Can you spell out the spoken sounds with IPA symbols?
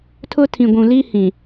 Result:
tʰʊ˦tʰĩ˨ ɡʷũ˨li˦hĩ˨

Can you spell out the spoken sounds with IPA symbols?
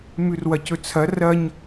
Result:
mʉrwɐcɵt͡sʰɐ rɐɲ

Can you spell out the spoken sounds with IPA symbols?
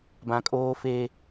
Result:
bã˨kʼoː˦fe˦

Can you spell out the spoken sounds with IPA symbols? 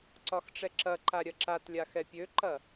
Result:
ǀɒxʈ͡ʂɛǁɐǃa ɾʲɐǁatlʲa xɛpʲøǃɐ

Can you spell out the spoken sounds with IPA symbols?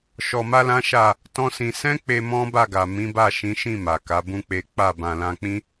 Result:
ʃɔ˧ma˦lã˦ʃa˦˨ | tɔ̃˦sĩ˧ sɛ̃˦k͡pe˧ mɔ̃˦ba˦˨ɡa˨ mĩ˨˦ba˦˨ ʃĩ˨˦ʃĩ˦˨ ma˨ka˨˦bũ˦k͡pe˦ k͡pa˦˨ bã˨lã˧k͡pĩ˦

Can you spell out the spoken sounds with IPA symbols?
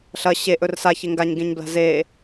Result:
ɬɐ ɕe ʔɵrsa çeŋɡaɲ ɡẽɲbla̤ze

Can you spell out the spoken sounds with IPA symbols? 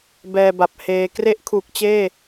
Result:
bɛː˧ba˨˩p̚heː˧ kre˥˩ʔkʰuː˨˩k̚t͡ɕeː˥˩

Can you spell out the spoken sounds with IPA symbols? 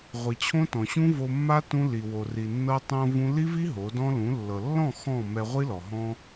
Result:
ʁʷi˨t͡ɕʰõ˦tɔ̃˨ɕũ˦ vo˧mːa˦ tũ˦ li˨wo˨ri˨ nːɤ˧tˤõ˧ vũ˦ li˦vi˦ ɦo˨˦dɔ̃˦ lũ˨˦lːɤ˨ lːɔ̃˦˨ xɔ̃˦˨ mɛ˧ʁʷi˦lɔ˨ ɦɔ̃˦

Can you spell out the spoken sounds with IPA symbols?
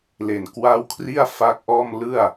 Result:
le˨˩nkwa˦˥w kʰri˥˩a̯fa˦˥k̚ʔɔː˥˩m lɯ˥˩a̯

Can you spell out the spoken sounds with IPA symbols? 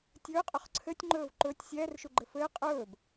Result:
tʲɵːqʼɵχ ǀʰɘtʲŋ͡ǃɵːv ǃɵːtʲ sʲɛːrʃuɡ͡ǃɘ fɘː qʼɵːb

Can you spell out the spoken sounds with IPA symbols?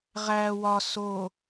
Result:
ʁæ wɒ so

